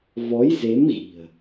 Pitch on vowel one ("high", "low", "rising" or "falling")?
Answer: rising